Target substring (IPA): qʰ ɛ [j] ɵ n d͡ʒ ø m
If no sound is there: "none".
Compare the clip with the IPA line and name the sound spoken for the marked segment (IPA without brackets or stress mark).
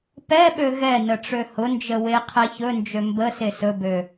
ç